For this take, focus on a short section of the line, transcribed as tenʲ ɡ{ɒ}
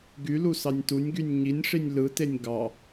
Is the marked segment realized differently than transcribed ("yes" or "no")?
yes